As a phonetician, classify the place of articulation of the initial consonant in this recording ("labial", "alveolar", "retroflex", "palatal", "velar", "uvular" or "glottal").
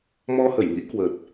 labial